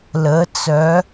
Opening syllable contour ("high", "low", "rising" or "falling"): rising